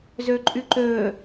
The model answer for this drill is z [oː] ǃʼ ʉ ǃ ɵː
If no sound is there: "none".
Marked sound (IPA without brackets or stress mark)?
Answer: ɵː